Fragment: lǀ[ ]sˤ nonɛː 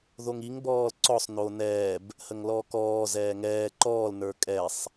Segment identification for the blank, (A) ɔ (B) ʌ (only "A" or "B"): A